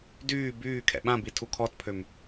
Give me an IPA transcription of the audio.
dyː byː kʰɛ̰ɓãbi tʰukʰɔtpʰøm

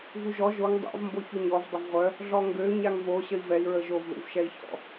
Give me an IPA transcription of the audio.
vuʒɔ ʒoŋ dˤa̰v mboçuɲɔv dˤəvʁʷœ | ɮɔŋɡø ɲaŋvo ɕəi̯vɛi̯ ɹəʒov ðṵvʃɛi̯çɔ̰

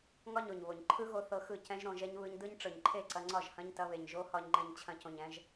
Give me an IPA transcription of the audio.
ŋɒ˦ɲo˨ɲβo˨ɲ ǃʰɯ˦ɣo˧ θɤ˧xɯ˦˨ cɛ̃˦ʒ ɾõ˧ʒɛ˦ɲ βɯ˧ɲ dɯ˦ɲ ʈ͡ʂɤ˨ɲǃʰe˦˨ǀɐ˧ŋ͡ǀɒ˦˨ʒ hɐ̃˦ɲ tɐ˧βe˨ɲ ʒo˦hɒ˧ɲŋ͡ǃɛ̃˧ɲ t͡ɕʰɐ̃˧cõ˨ɲɛ̃˧ʒ

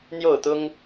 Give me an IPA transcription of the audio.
n̪jo˥˨ʊ̯t̪ʊ˦ŋ

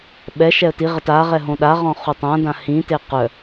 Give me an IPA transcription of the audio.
ɓɛ ʃɛə̯tiʁət aʁɛ ɦõɗaʁɔ̃ χutˤãdã hĩte qœ

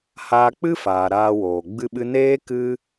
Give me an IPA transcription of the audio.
haː˧k͡pɨ˦faː˨ ɾaː˧woː˨ ɡ͡bɨ˧ɓɨ˧ neː˦ kɨ˦

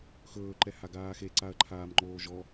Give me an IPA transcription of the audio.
xɵːǃɛhaɡaː xeǀaɐ̯ǃʰaːmŋ͡ǃoː ʒɔ

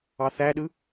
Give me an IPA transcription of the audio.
ɑθæɗɯ

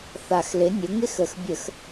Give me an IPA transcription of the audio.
θa˨˩xlɪ˩˥nʲʊ˩˥ŋɪ˦˥x ə˨˩xbʲə˧˩˧x

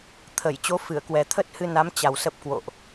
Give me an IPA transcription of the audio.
t̪ʰə˧˩j t͡ɕo˨˦ fɨ˧˩ə̯kwɛ˨˩ t̪ʰə˦˥t̚hɨ˧na˨˦m t͡ɕa˨˩wsə˦˥p̚kwo̰˧˨ʔ

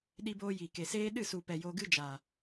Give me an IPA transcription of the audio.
ɗi˧boː˧jiː˨ ke˨seː˦ ɗɨ˦˨su˨pɛ˨ jo˧ɡɨ˦d͡ʒa˨

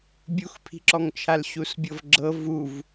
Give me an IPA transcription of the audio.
bʲuxpʰi̤ǁɔŋt͡ʃʰal ɕusbʲɤvɡ͡ǁɤ vuv

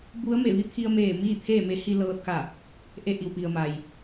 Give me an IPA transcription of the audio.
bu˧˥ə̯me˧˩ ʋi˧˥t̪ʰi˧ə̯meː˧˩ miː˥˨t̪ʰeː˥˨me˧˥ hi˧lɤː˧t̚ka˧˩ | ʔe˧ʔi˩wpi˩ə̯ ma˩j

